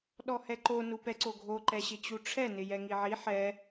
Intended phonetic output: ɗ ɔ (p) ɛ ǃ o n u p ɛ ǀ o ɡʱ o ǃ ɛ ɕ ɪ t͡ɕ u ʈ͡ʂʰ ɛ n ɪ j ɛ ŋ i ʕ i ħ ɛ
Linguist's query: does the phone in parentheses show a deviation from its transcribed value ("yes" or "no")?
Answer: yes